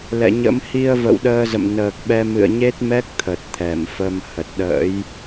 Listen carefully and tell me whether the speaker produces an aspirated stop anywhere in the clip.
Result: yes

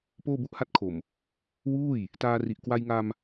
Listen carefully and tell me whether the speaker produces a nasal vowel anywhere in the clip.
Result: no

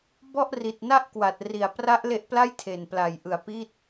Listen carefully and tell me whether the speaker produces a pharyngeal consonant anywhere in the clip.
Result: no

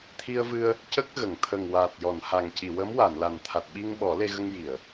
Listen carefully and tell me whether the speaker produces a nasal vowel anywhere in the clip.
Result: no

